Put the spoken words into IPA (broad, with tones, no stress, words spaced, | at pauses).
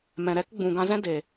mɛ̃˨ɾɛ˦k ɡ͡bũ˨ɡã˧zɛ̃˦ de˨